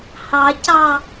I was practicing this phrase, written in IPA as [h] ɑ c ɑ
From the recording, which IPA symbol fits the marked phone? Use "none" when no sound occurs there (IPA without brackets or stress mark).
h